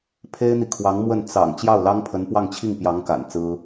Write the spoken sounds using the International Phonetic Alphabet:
pʰ e˥ ɪ̯ n̪ i˨ kʰ w ɑ˧˥ ŋ m w ə˥˩ n t͡s ɑ̰˨˩ ŋ t͡ɕ j ɑ˥˩ ʊ̯ l ɑ˥ ŋ pʰ ə˧˥ n p w ɑ˥˧ ŋ t͡ɕʰ i˥˩ ŋ p j ɑ˧˥ ŋ k a̰˨˩ n t͡s ɹ̩˥

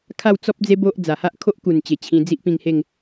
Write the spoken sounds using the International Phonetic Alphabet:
kʰ a˥˧ w t͡s ɔ˦ p̚ d͡z e˦ b o˦ ʔ d͡z a˨˩ h a˦ ʔ kʰ o˦ ʔ k u˨˩ n t͡ɕ e˨˩ t͡ɕʰ ĩ˧ d͡z i˦ ʔ p ĩ˧ ŋ h e˥˧ ŋ

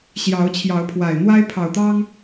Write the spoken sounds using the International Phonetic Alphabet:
ɕ j ɑ˨˦ ʊ̯ t͡ɕʰ j ɑ˨˦ ʊ̯ pʰ w a˨˩ ɪ̯ n̪ w a˦ ɪ̯ pʰ ɑ˨˩ ʊ̯ t̪ ɑ˦ ŋ

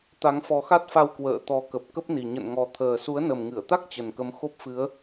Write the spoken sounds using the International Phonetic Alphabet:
t̪ a˨˦ ŋ f ɔ˨˦ x a˦˥ t̚ f a˧ w k w ə̰ː˧˨ t̪ ɔ˨˦ k ə˨˩ p̚ k ə˦˥ p̚ n i˨˩ ɲ ə̰˧˨ n ŋ ɔ˨˩ t̪ʰ əː˨˩ s u˨˦ ə̯ n ə˨˩ m ŋ ɨ˧˩ ə̯ t̪ a˦˥ k̚ t͡ɕ ə˨˩ n k ə˨˦ m x o˦˥ p̚ f ɨ˨˦ ə̯

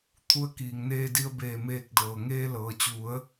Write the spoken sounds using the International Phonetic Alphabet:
t̪ʰ u˧ ə̯ k iː˩ ŋ n eː˧ d i˧ ə̯ b eː˧˩ m eː˧˩ k̚ d ɤː˩ ŋ eː˧ l ɤː˩ t͡ɕ u˩˧ ə̯

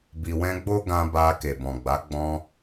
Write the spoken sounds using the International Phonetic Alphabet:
b i˨ w ɛ̃˧ ɡ͡b o˦ ɡ ã˧ b a˧ k e˨ b ɔ̃˨ ɡ͡b a˨˦ ɡ͡b ɔ̃˧

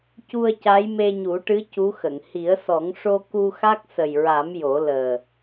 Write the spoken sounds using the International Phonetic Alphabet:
c u˧ ə̯ c a˧˥ j m e˧ ɲ u˨˩˦ ʈ ɨ˧˥ c u˧˥ x ə˨˩˨ ŋ h i˨˩˦ ə̯ s ɔ˨˩˦ ŋ ʂ o˧ k u˧ x a˦˥ k̚ s ə˨˩ j ɹ a˨˩˦ m j o˨˩˦ l əː˨˩

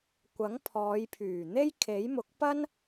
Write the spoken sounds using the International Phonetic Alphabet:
kʷ ɐ˨˥ ŋ pʰ ɔː˨˧ j pʰ yː˨˩ n̪ e˥ j kʰ e˨˥ j m ʊ˨˥ k̚ p ɐ˥ n

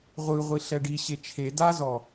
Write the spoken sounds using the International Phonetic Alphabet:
ʁʷ ɯ ʁʷ i ɬ ɛ ɖ i ɕ e t͡ʃʰ e d a z ɔ

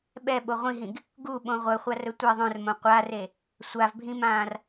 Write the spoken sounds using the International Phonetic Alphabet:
ɓ ɛ ɓ o ʁʷ ĩ ɦ ĩ ɡ | ɡ u ɓ õ ʁʷ œ χʷ a r ɵ tʷ e ðˤ œ̃ r m õ qʷ a r e | sʷ a v bʱ ĩ m ãː r

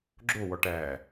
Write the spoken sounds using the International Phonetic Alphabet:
ɡ͡ǁ o w ɔ ʈ æ

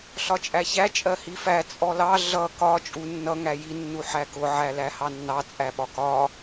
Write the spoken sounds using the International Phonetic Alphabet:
ɬ ɒ t͡ʃʼ æ ç æ t͡ʃʼ ɜ h i f æ t͡sʼ ɔ l ɑ ɮ ʌ k ɒ t͡ʃʼ u nː ʌ ŋ æ j i nː u ħ æ k ʊ ʕ æ l æ h ɑ nː ɑ t͡sʼ æ ɓ ɒ k ɒ

